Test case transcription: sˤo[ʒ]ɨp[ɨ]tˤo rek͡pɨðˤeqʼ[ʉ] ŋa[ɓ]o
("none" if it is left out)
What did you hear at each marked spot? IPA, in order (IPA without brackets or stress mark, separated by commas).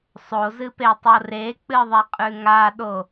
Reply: z, e, ʉ, ɗ